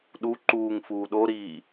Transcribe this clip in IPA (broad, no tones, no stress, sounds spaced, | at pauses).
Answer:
ɗ u ǃ uː ŋ f uː ɗ o ɾ iː